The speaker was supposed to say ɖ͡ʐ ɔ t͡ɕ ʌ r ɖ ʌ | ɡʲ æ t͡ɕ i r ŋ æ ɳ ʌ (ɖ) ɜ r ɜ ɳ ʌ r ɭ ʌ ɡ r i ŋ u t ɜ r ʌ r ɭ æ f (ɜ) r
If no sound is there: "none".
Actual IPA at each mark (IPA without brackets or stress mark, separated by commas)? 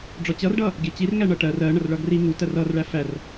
ʈ, æ